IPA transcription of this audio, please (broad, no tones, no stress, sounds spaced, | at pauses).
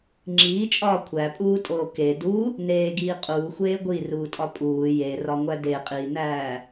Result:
ŋ͡ǁ iː t͡ʃʼ ɒː kʷʰ æ pʼ uː tʼ oː k e d u | n eː ɡ iː qʼ uː xʷ eː ɡʷ i r uː tʼ ɒ pʼ uː j e r ɒ ŋʷ æ d e qʼ iː n æː